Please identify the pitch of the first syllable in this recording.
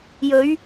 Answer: rising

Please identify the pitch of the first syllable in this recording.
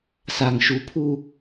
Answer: low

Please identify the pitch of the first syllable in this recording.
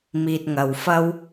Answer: low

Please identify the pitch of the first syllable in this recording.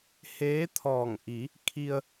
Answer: rising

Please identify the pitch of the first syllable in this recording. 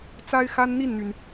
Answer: high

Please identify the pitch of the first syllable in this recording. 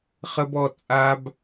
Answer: high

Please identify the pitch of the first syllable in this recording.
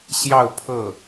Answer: falling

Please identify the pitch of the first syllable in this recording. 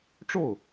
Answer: falling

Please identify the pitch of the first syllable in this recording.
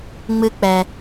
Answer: high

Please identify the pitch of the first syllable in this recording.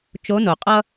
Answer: rising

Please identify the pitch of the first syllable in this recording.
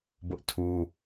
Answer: high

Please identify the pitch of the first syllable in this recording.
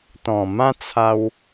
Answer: low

